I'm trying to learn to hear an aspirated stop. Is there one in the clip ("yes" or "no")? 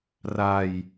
no